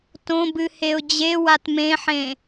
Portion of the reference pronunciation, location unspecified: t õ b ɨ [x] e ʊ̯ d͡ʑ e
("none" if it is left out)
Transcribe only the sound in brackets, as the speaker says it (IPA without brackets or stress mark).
h